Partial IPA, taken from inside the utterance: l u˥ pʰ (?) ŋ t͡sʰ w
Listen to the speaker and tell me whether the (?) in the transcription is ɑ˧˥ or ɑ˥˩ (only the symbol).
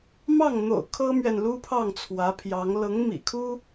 ɑ˥˩